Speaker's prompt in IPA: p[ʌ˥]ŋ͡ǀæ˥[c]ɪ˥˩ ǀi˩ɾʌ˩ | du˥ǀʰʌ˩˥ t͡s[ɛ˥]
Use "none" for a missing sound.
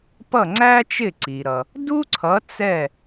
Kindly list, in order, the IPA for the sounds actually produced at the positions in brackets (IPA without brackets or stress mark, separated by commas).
ʌ˥˩, t͡ʃ, ɛ˥˩